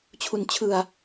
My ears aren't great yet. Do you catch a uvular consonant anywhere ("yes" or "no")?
no